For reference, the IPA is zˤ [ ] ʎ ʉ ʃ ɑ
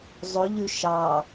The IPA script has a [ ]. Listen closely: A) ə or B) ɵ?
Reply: B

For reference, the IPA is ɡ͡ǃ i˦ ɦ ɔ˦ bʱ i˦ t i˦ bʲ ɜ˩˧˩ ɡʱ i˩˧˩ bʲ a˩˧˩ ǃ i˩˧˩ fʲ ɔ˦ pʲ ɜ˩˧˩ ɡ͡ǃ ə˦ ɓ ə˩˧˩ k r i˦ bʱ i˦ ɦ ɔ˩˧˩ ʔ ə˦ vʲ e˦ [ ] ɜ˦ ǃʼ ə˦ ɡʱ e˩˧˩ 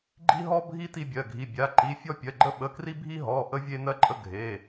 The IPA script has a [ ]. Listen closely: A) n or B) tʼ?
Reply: A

